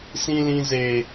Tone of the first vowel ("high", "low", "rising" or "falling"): high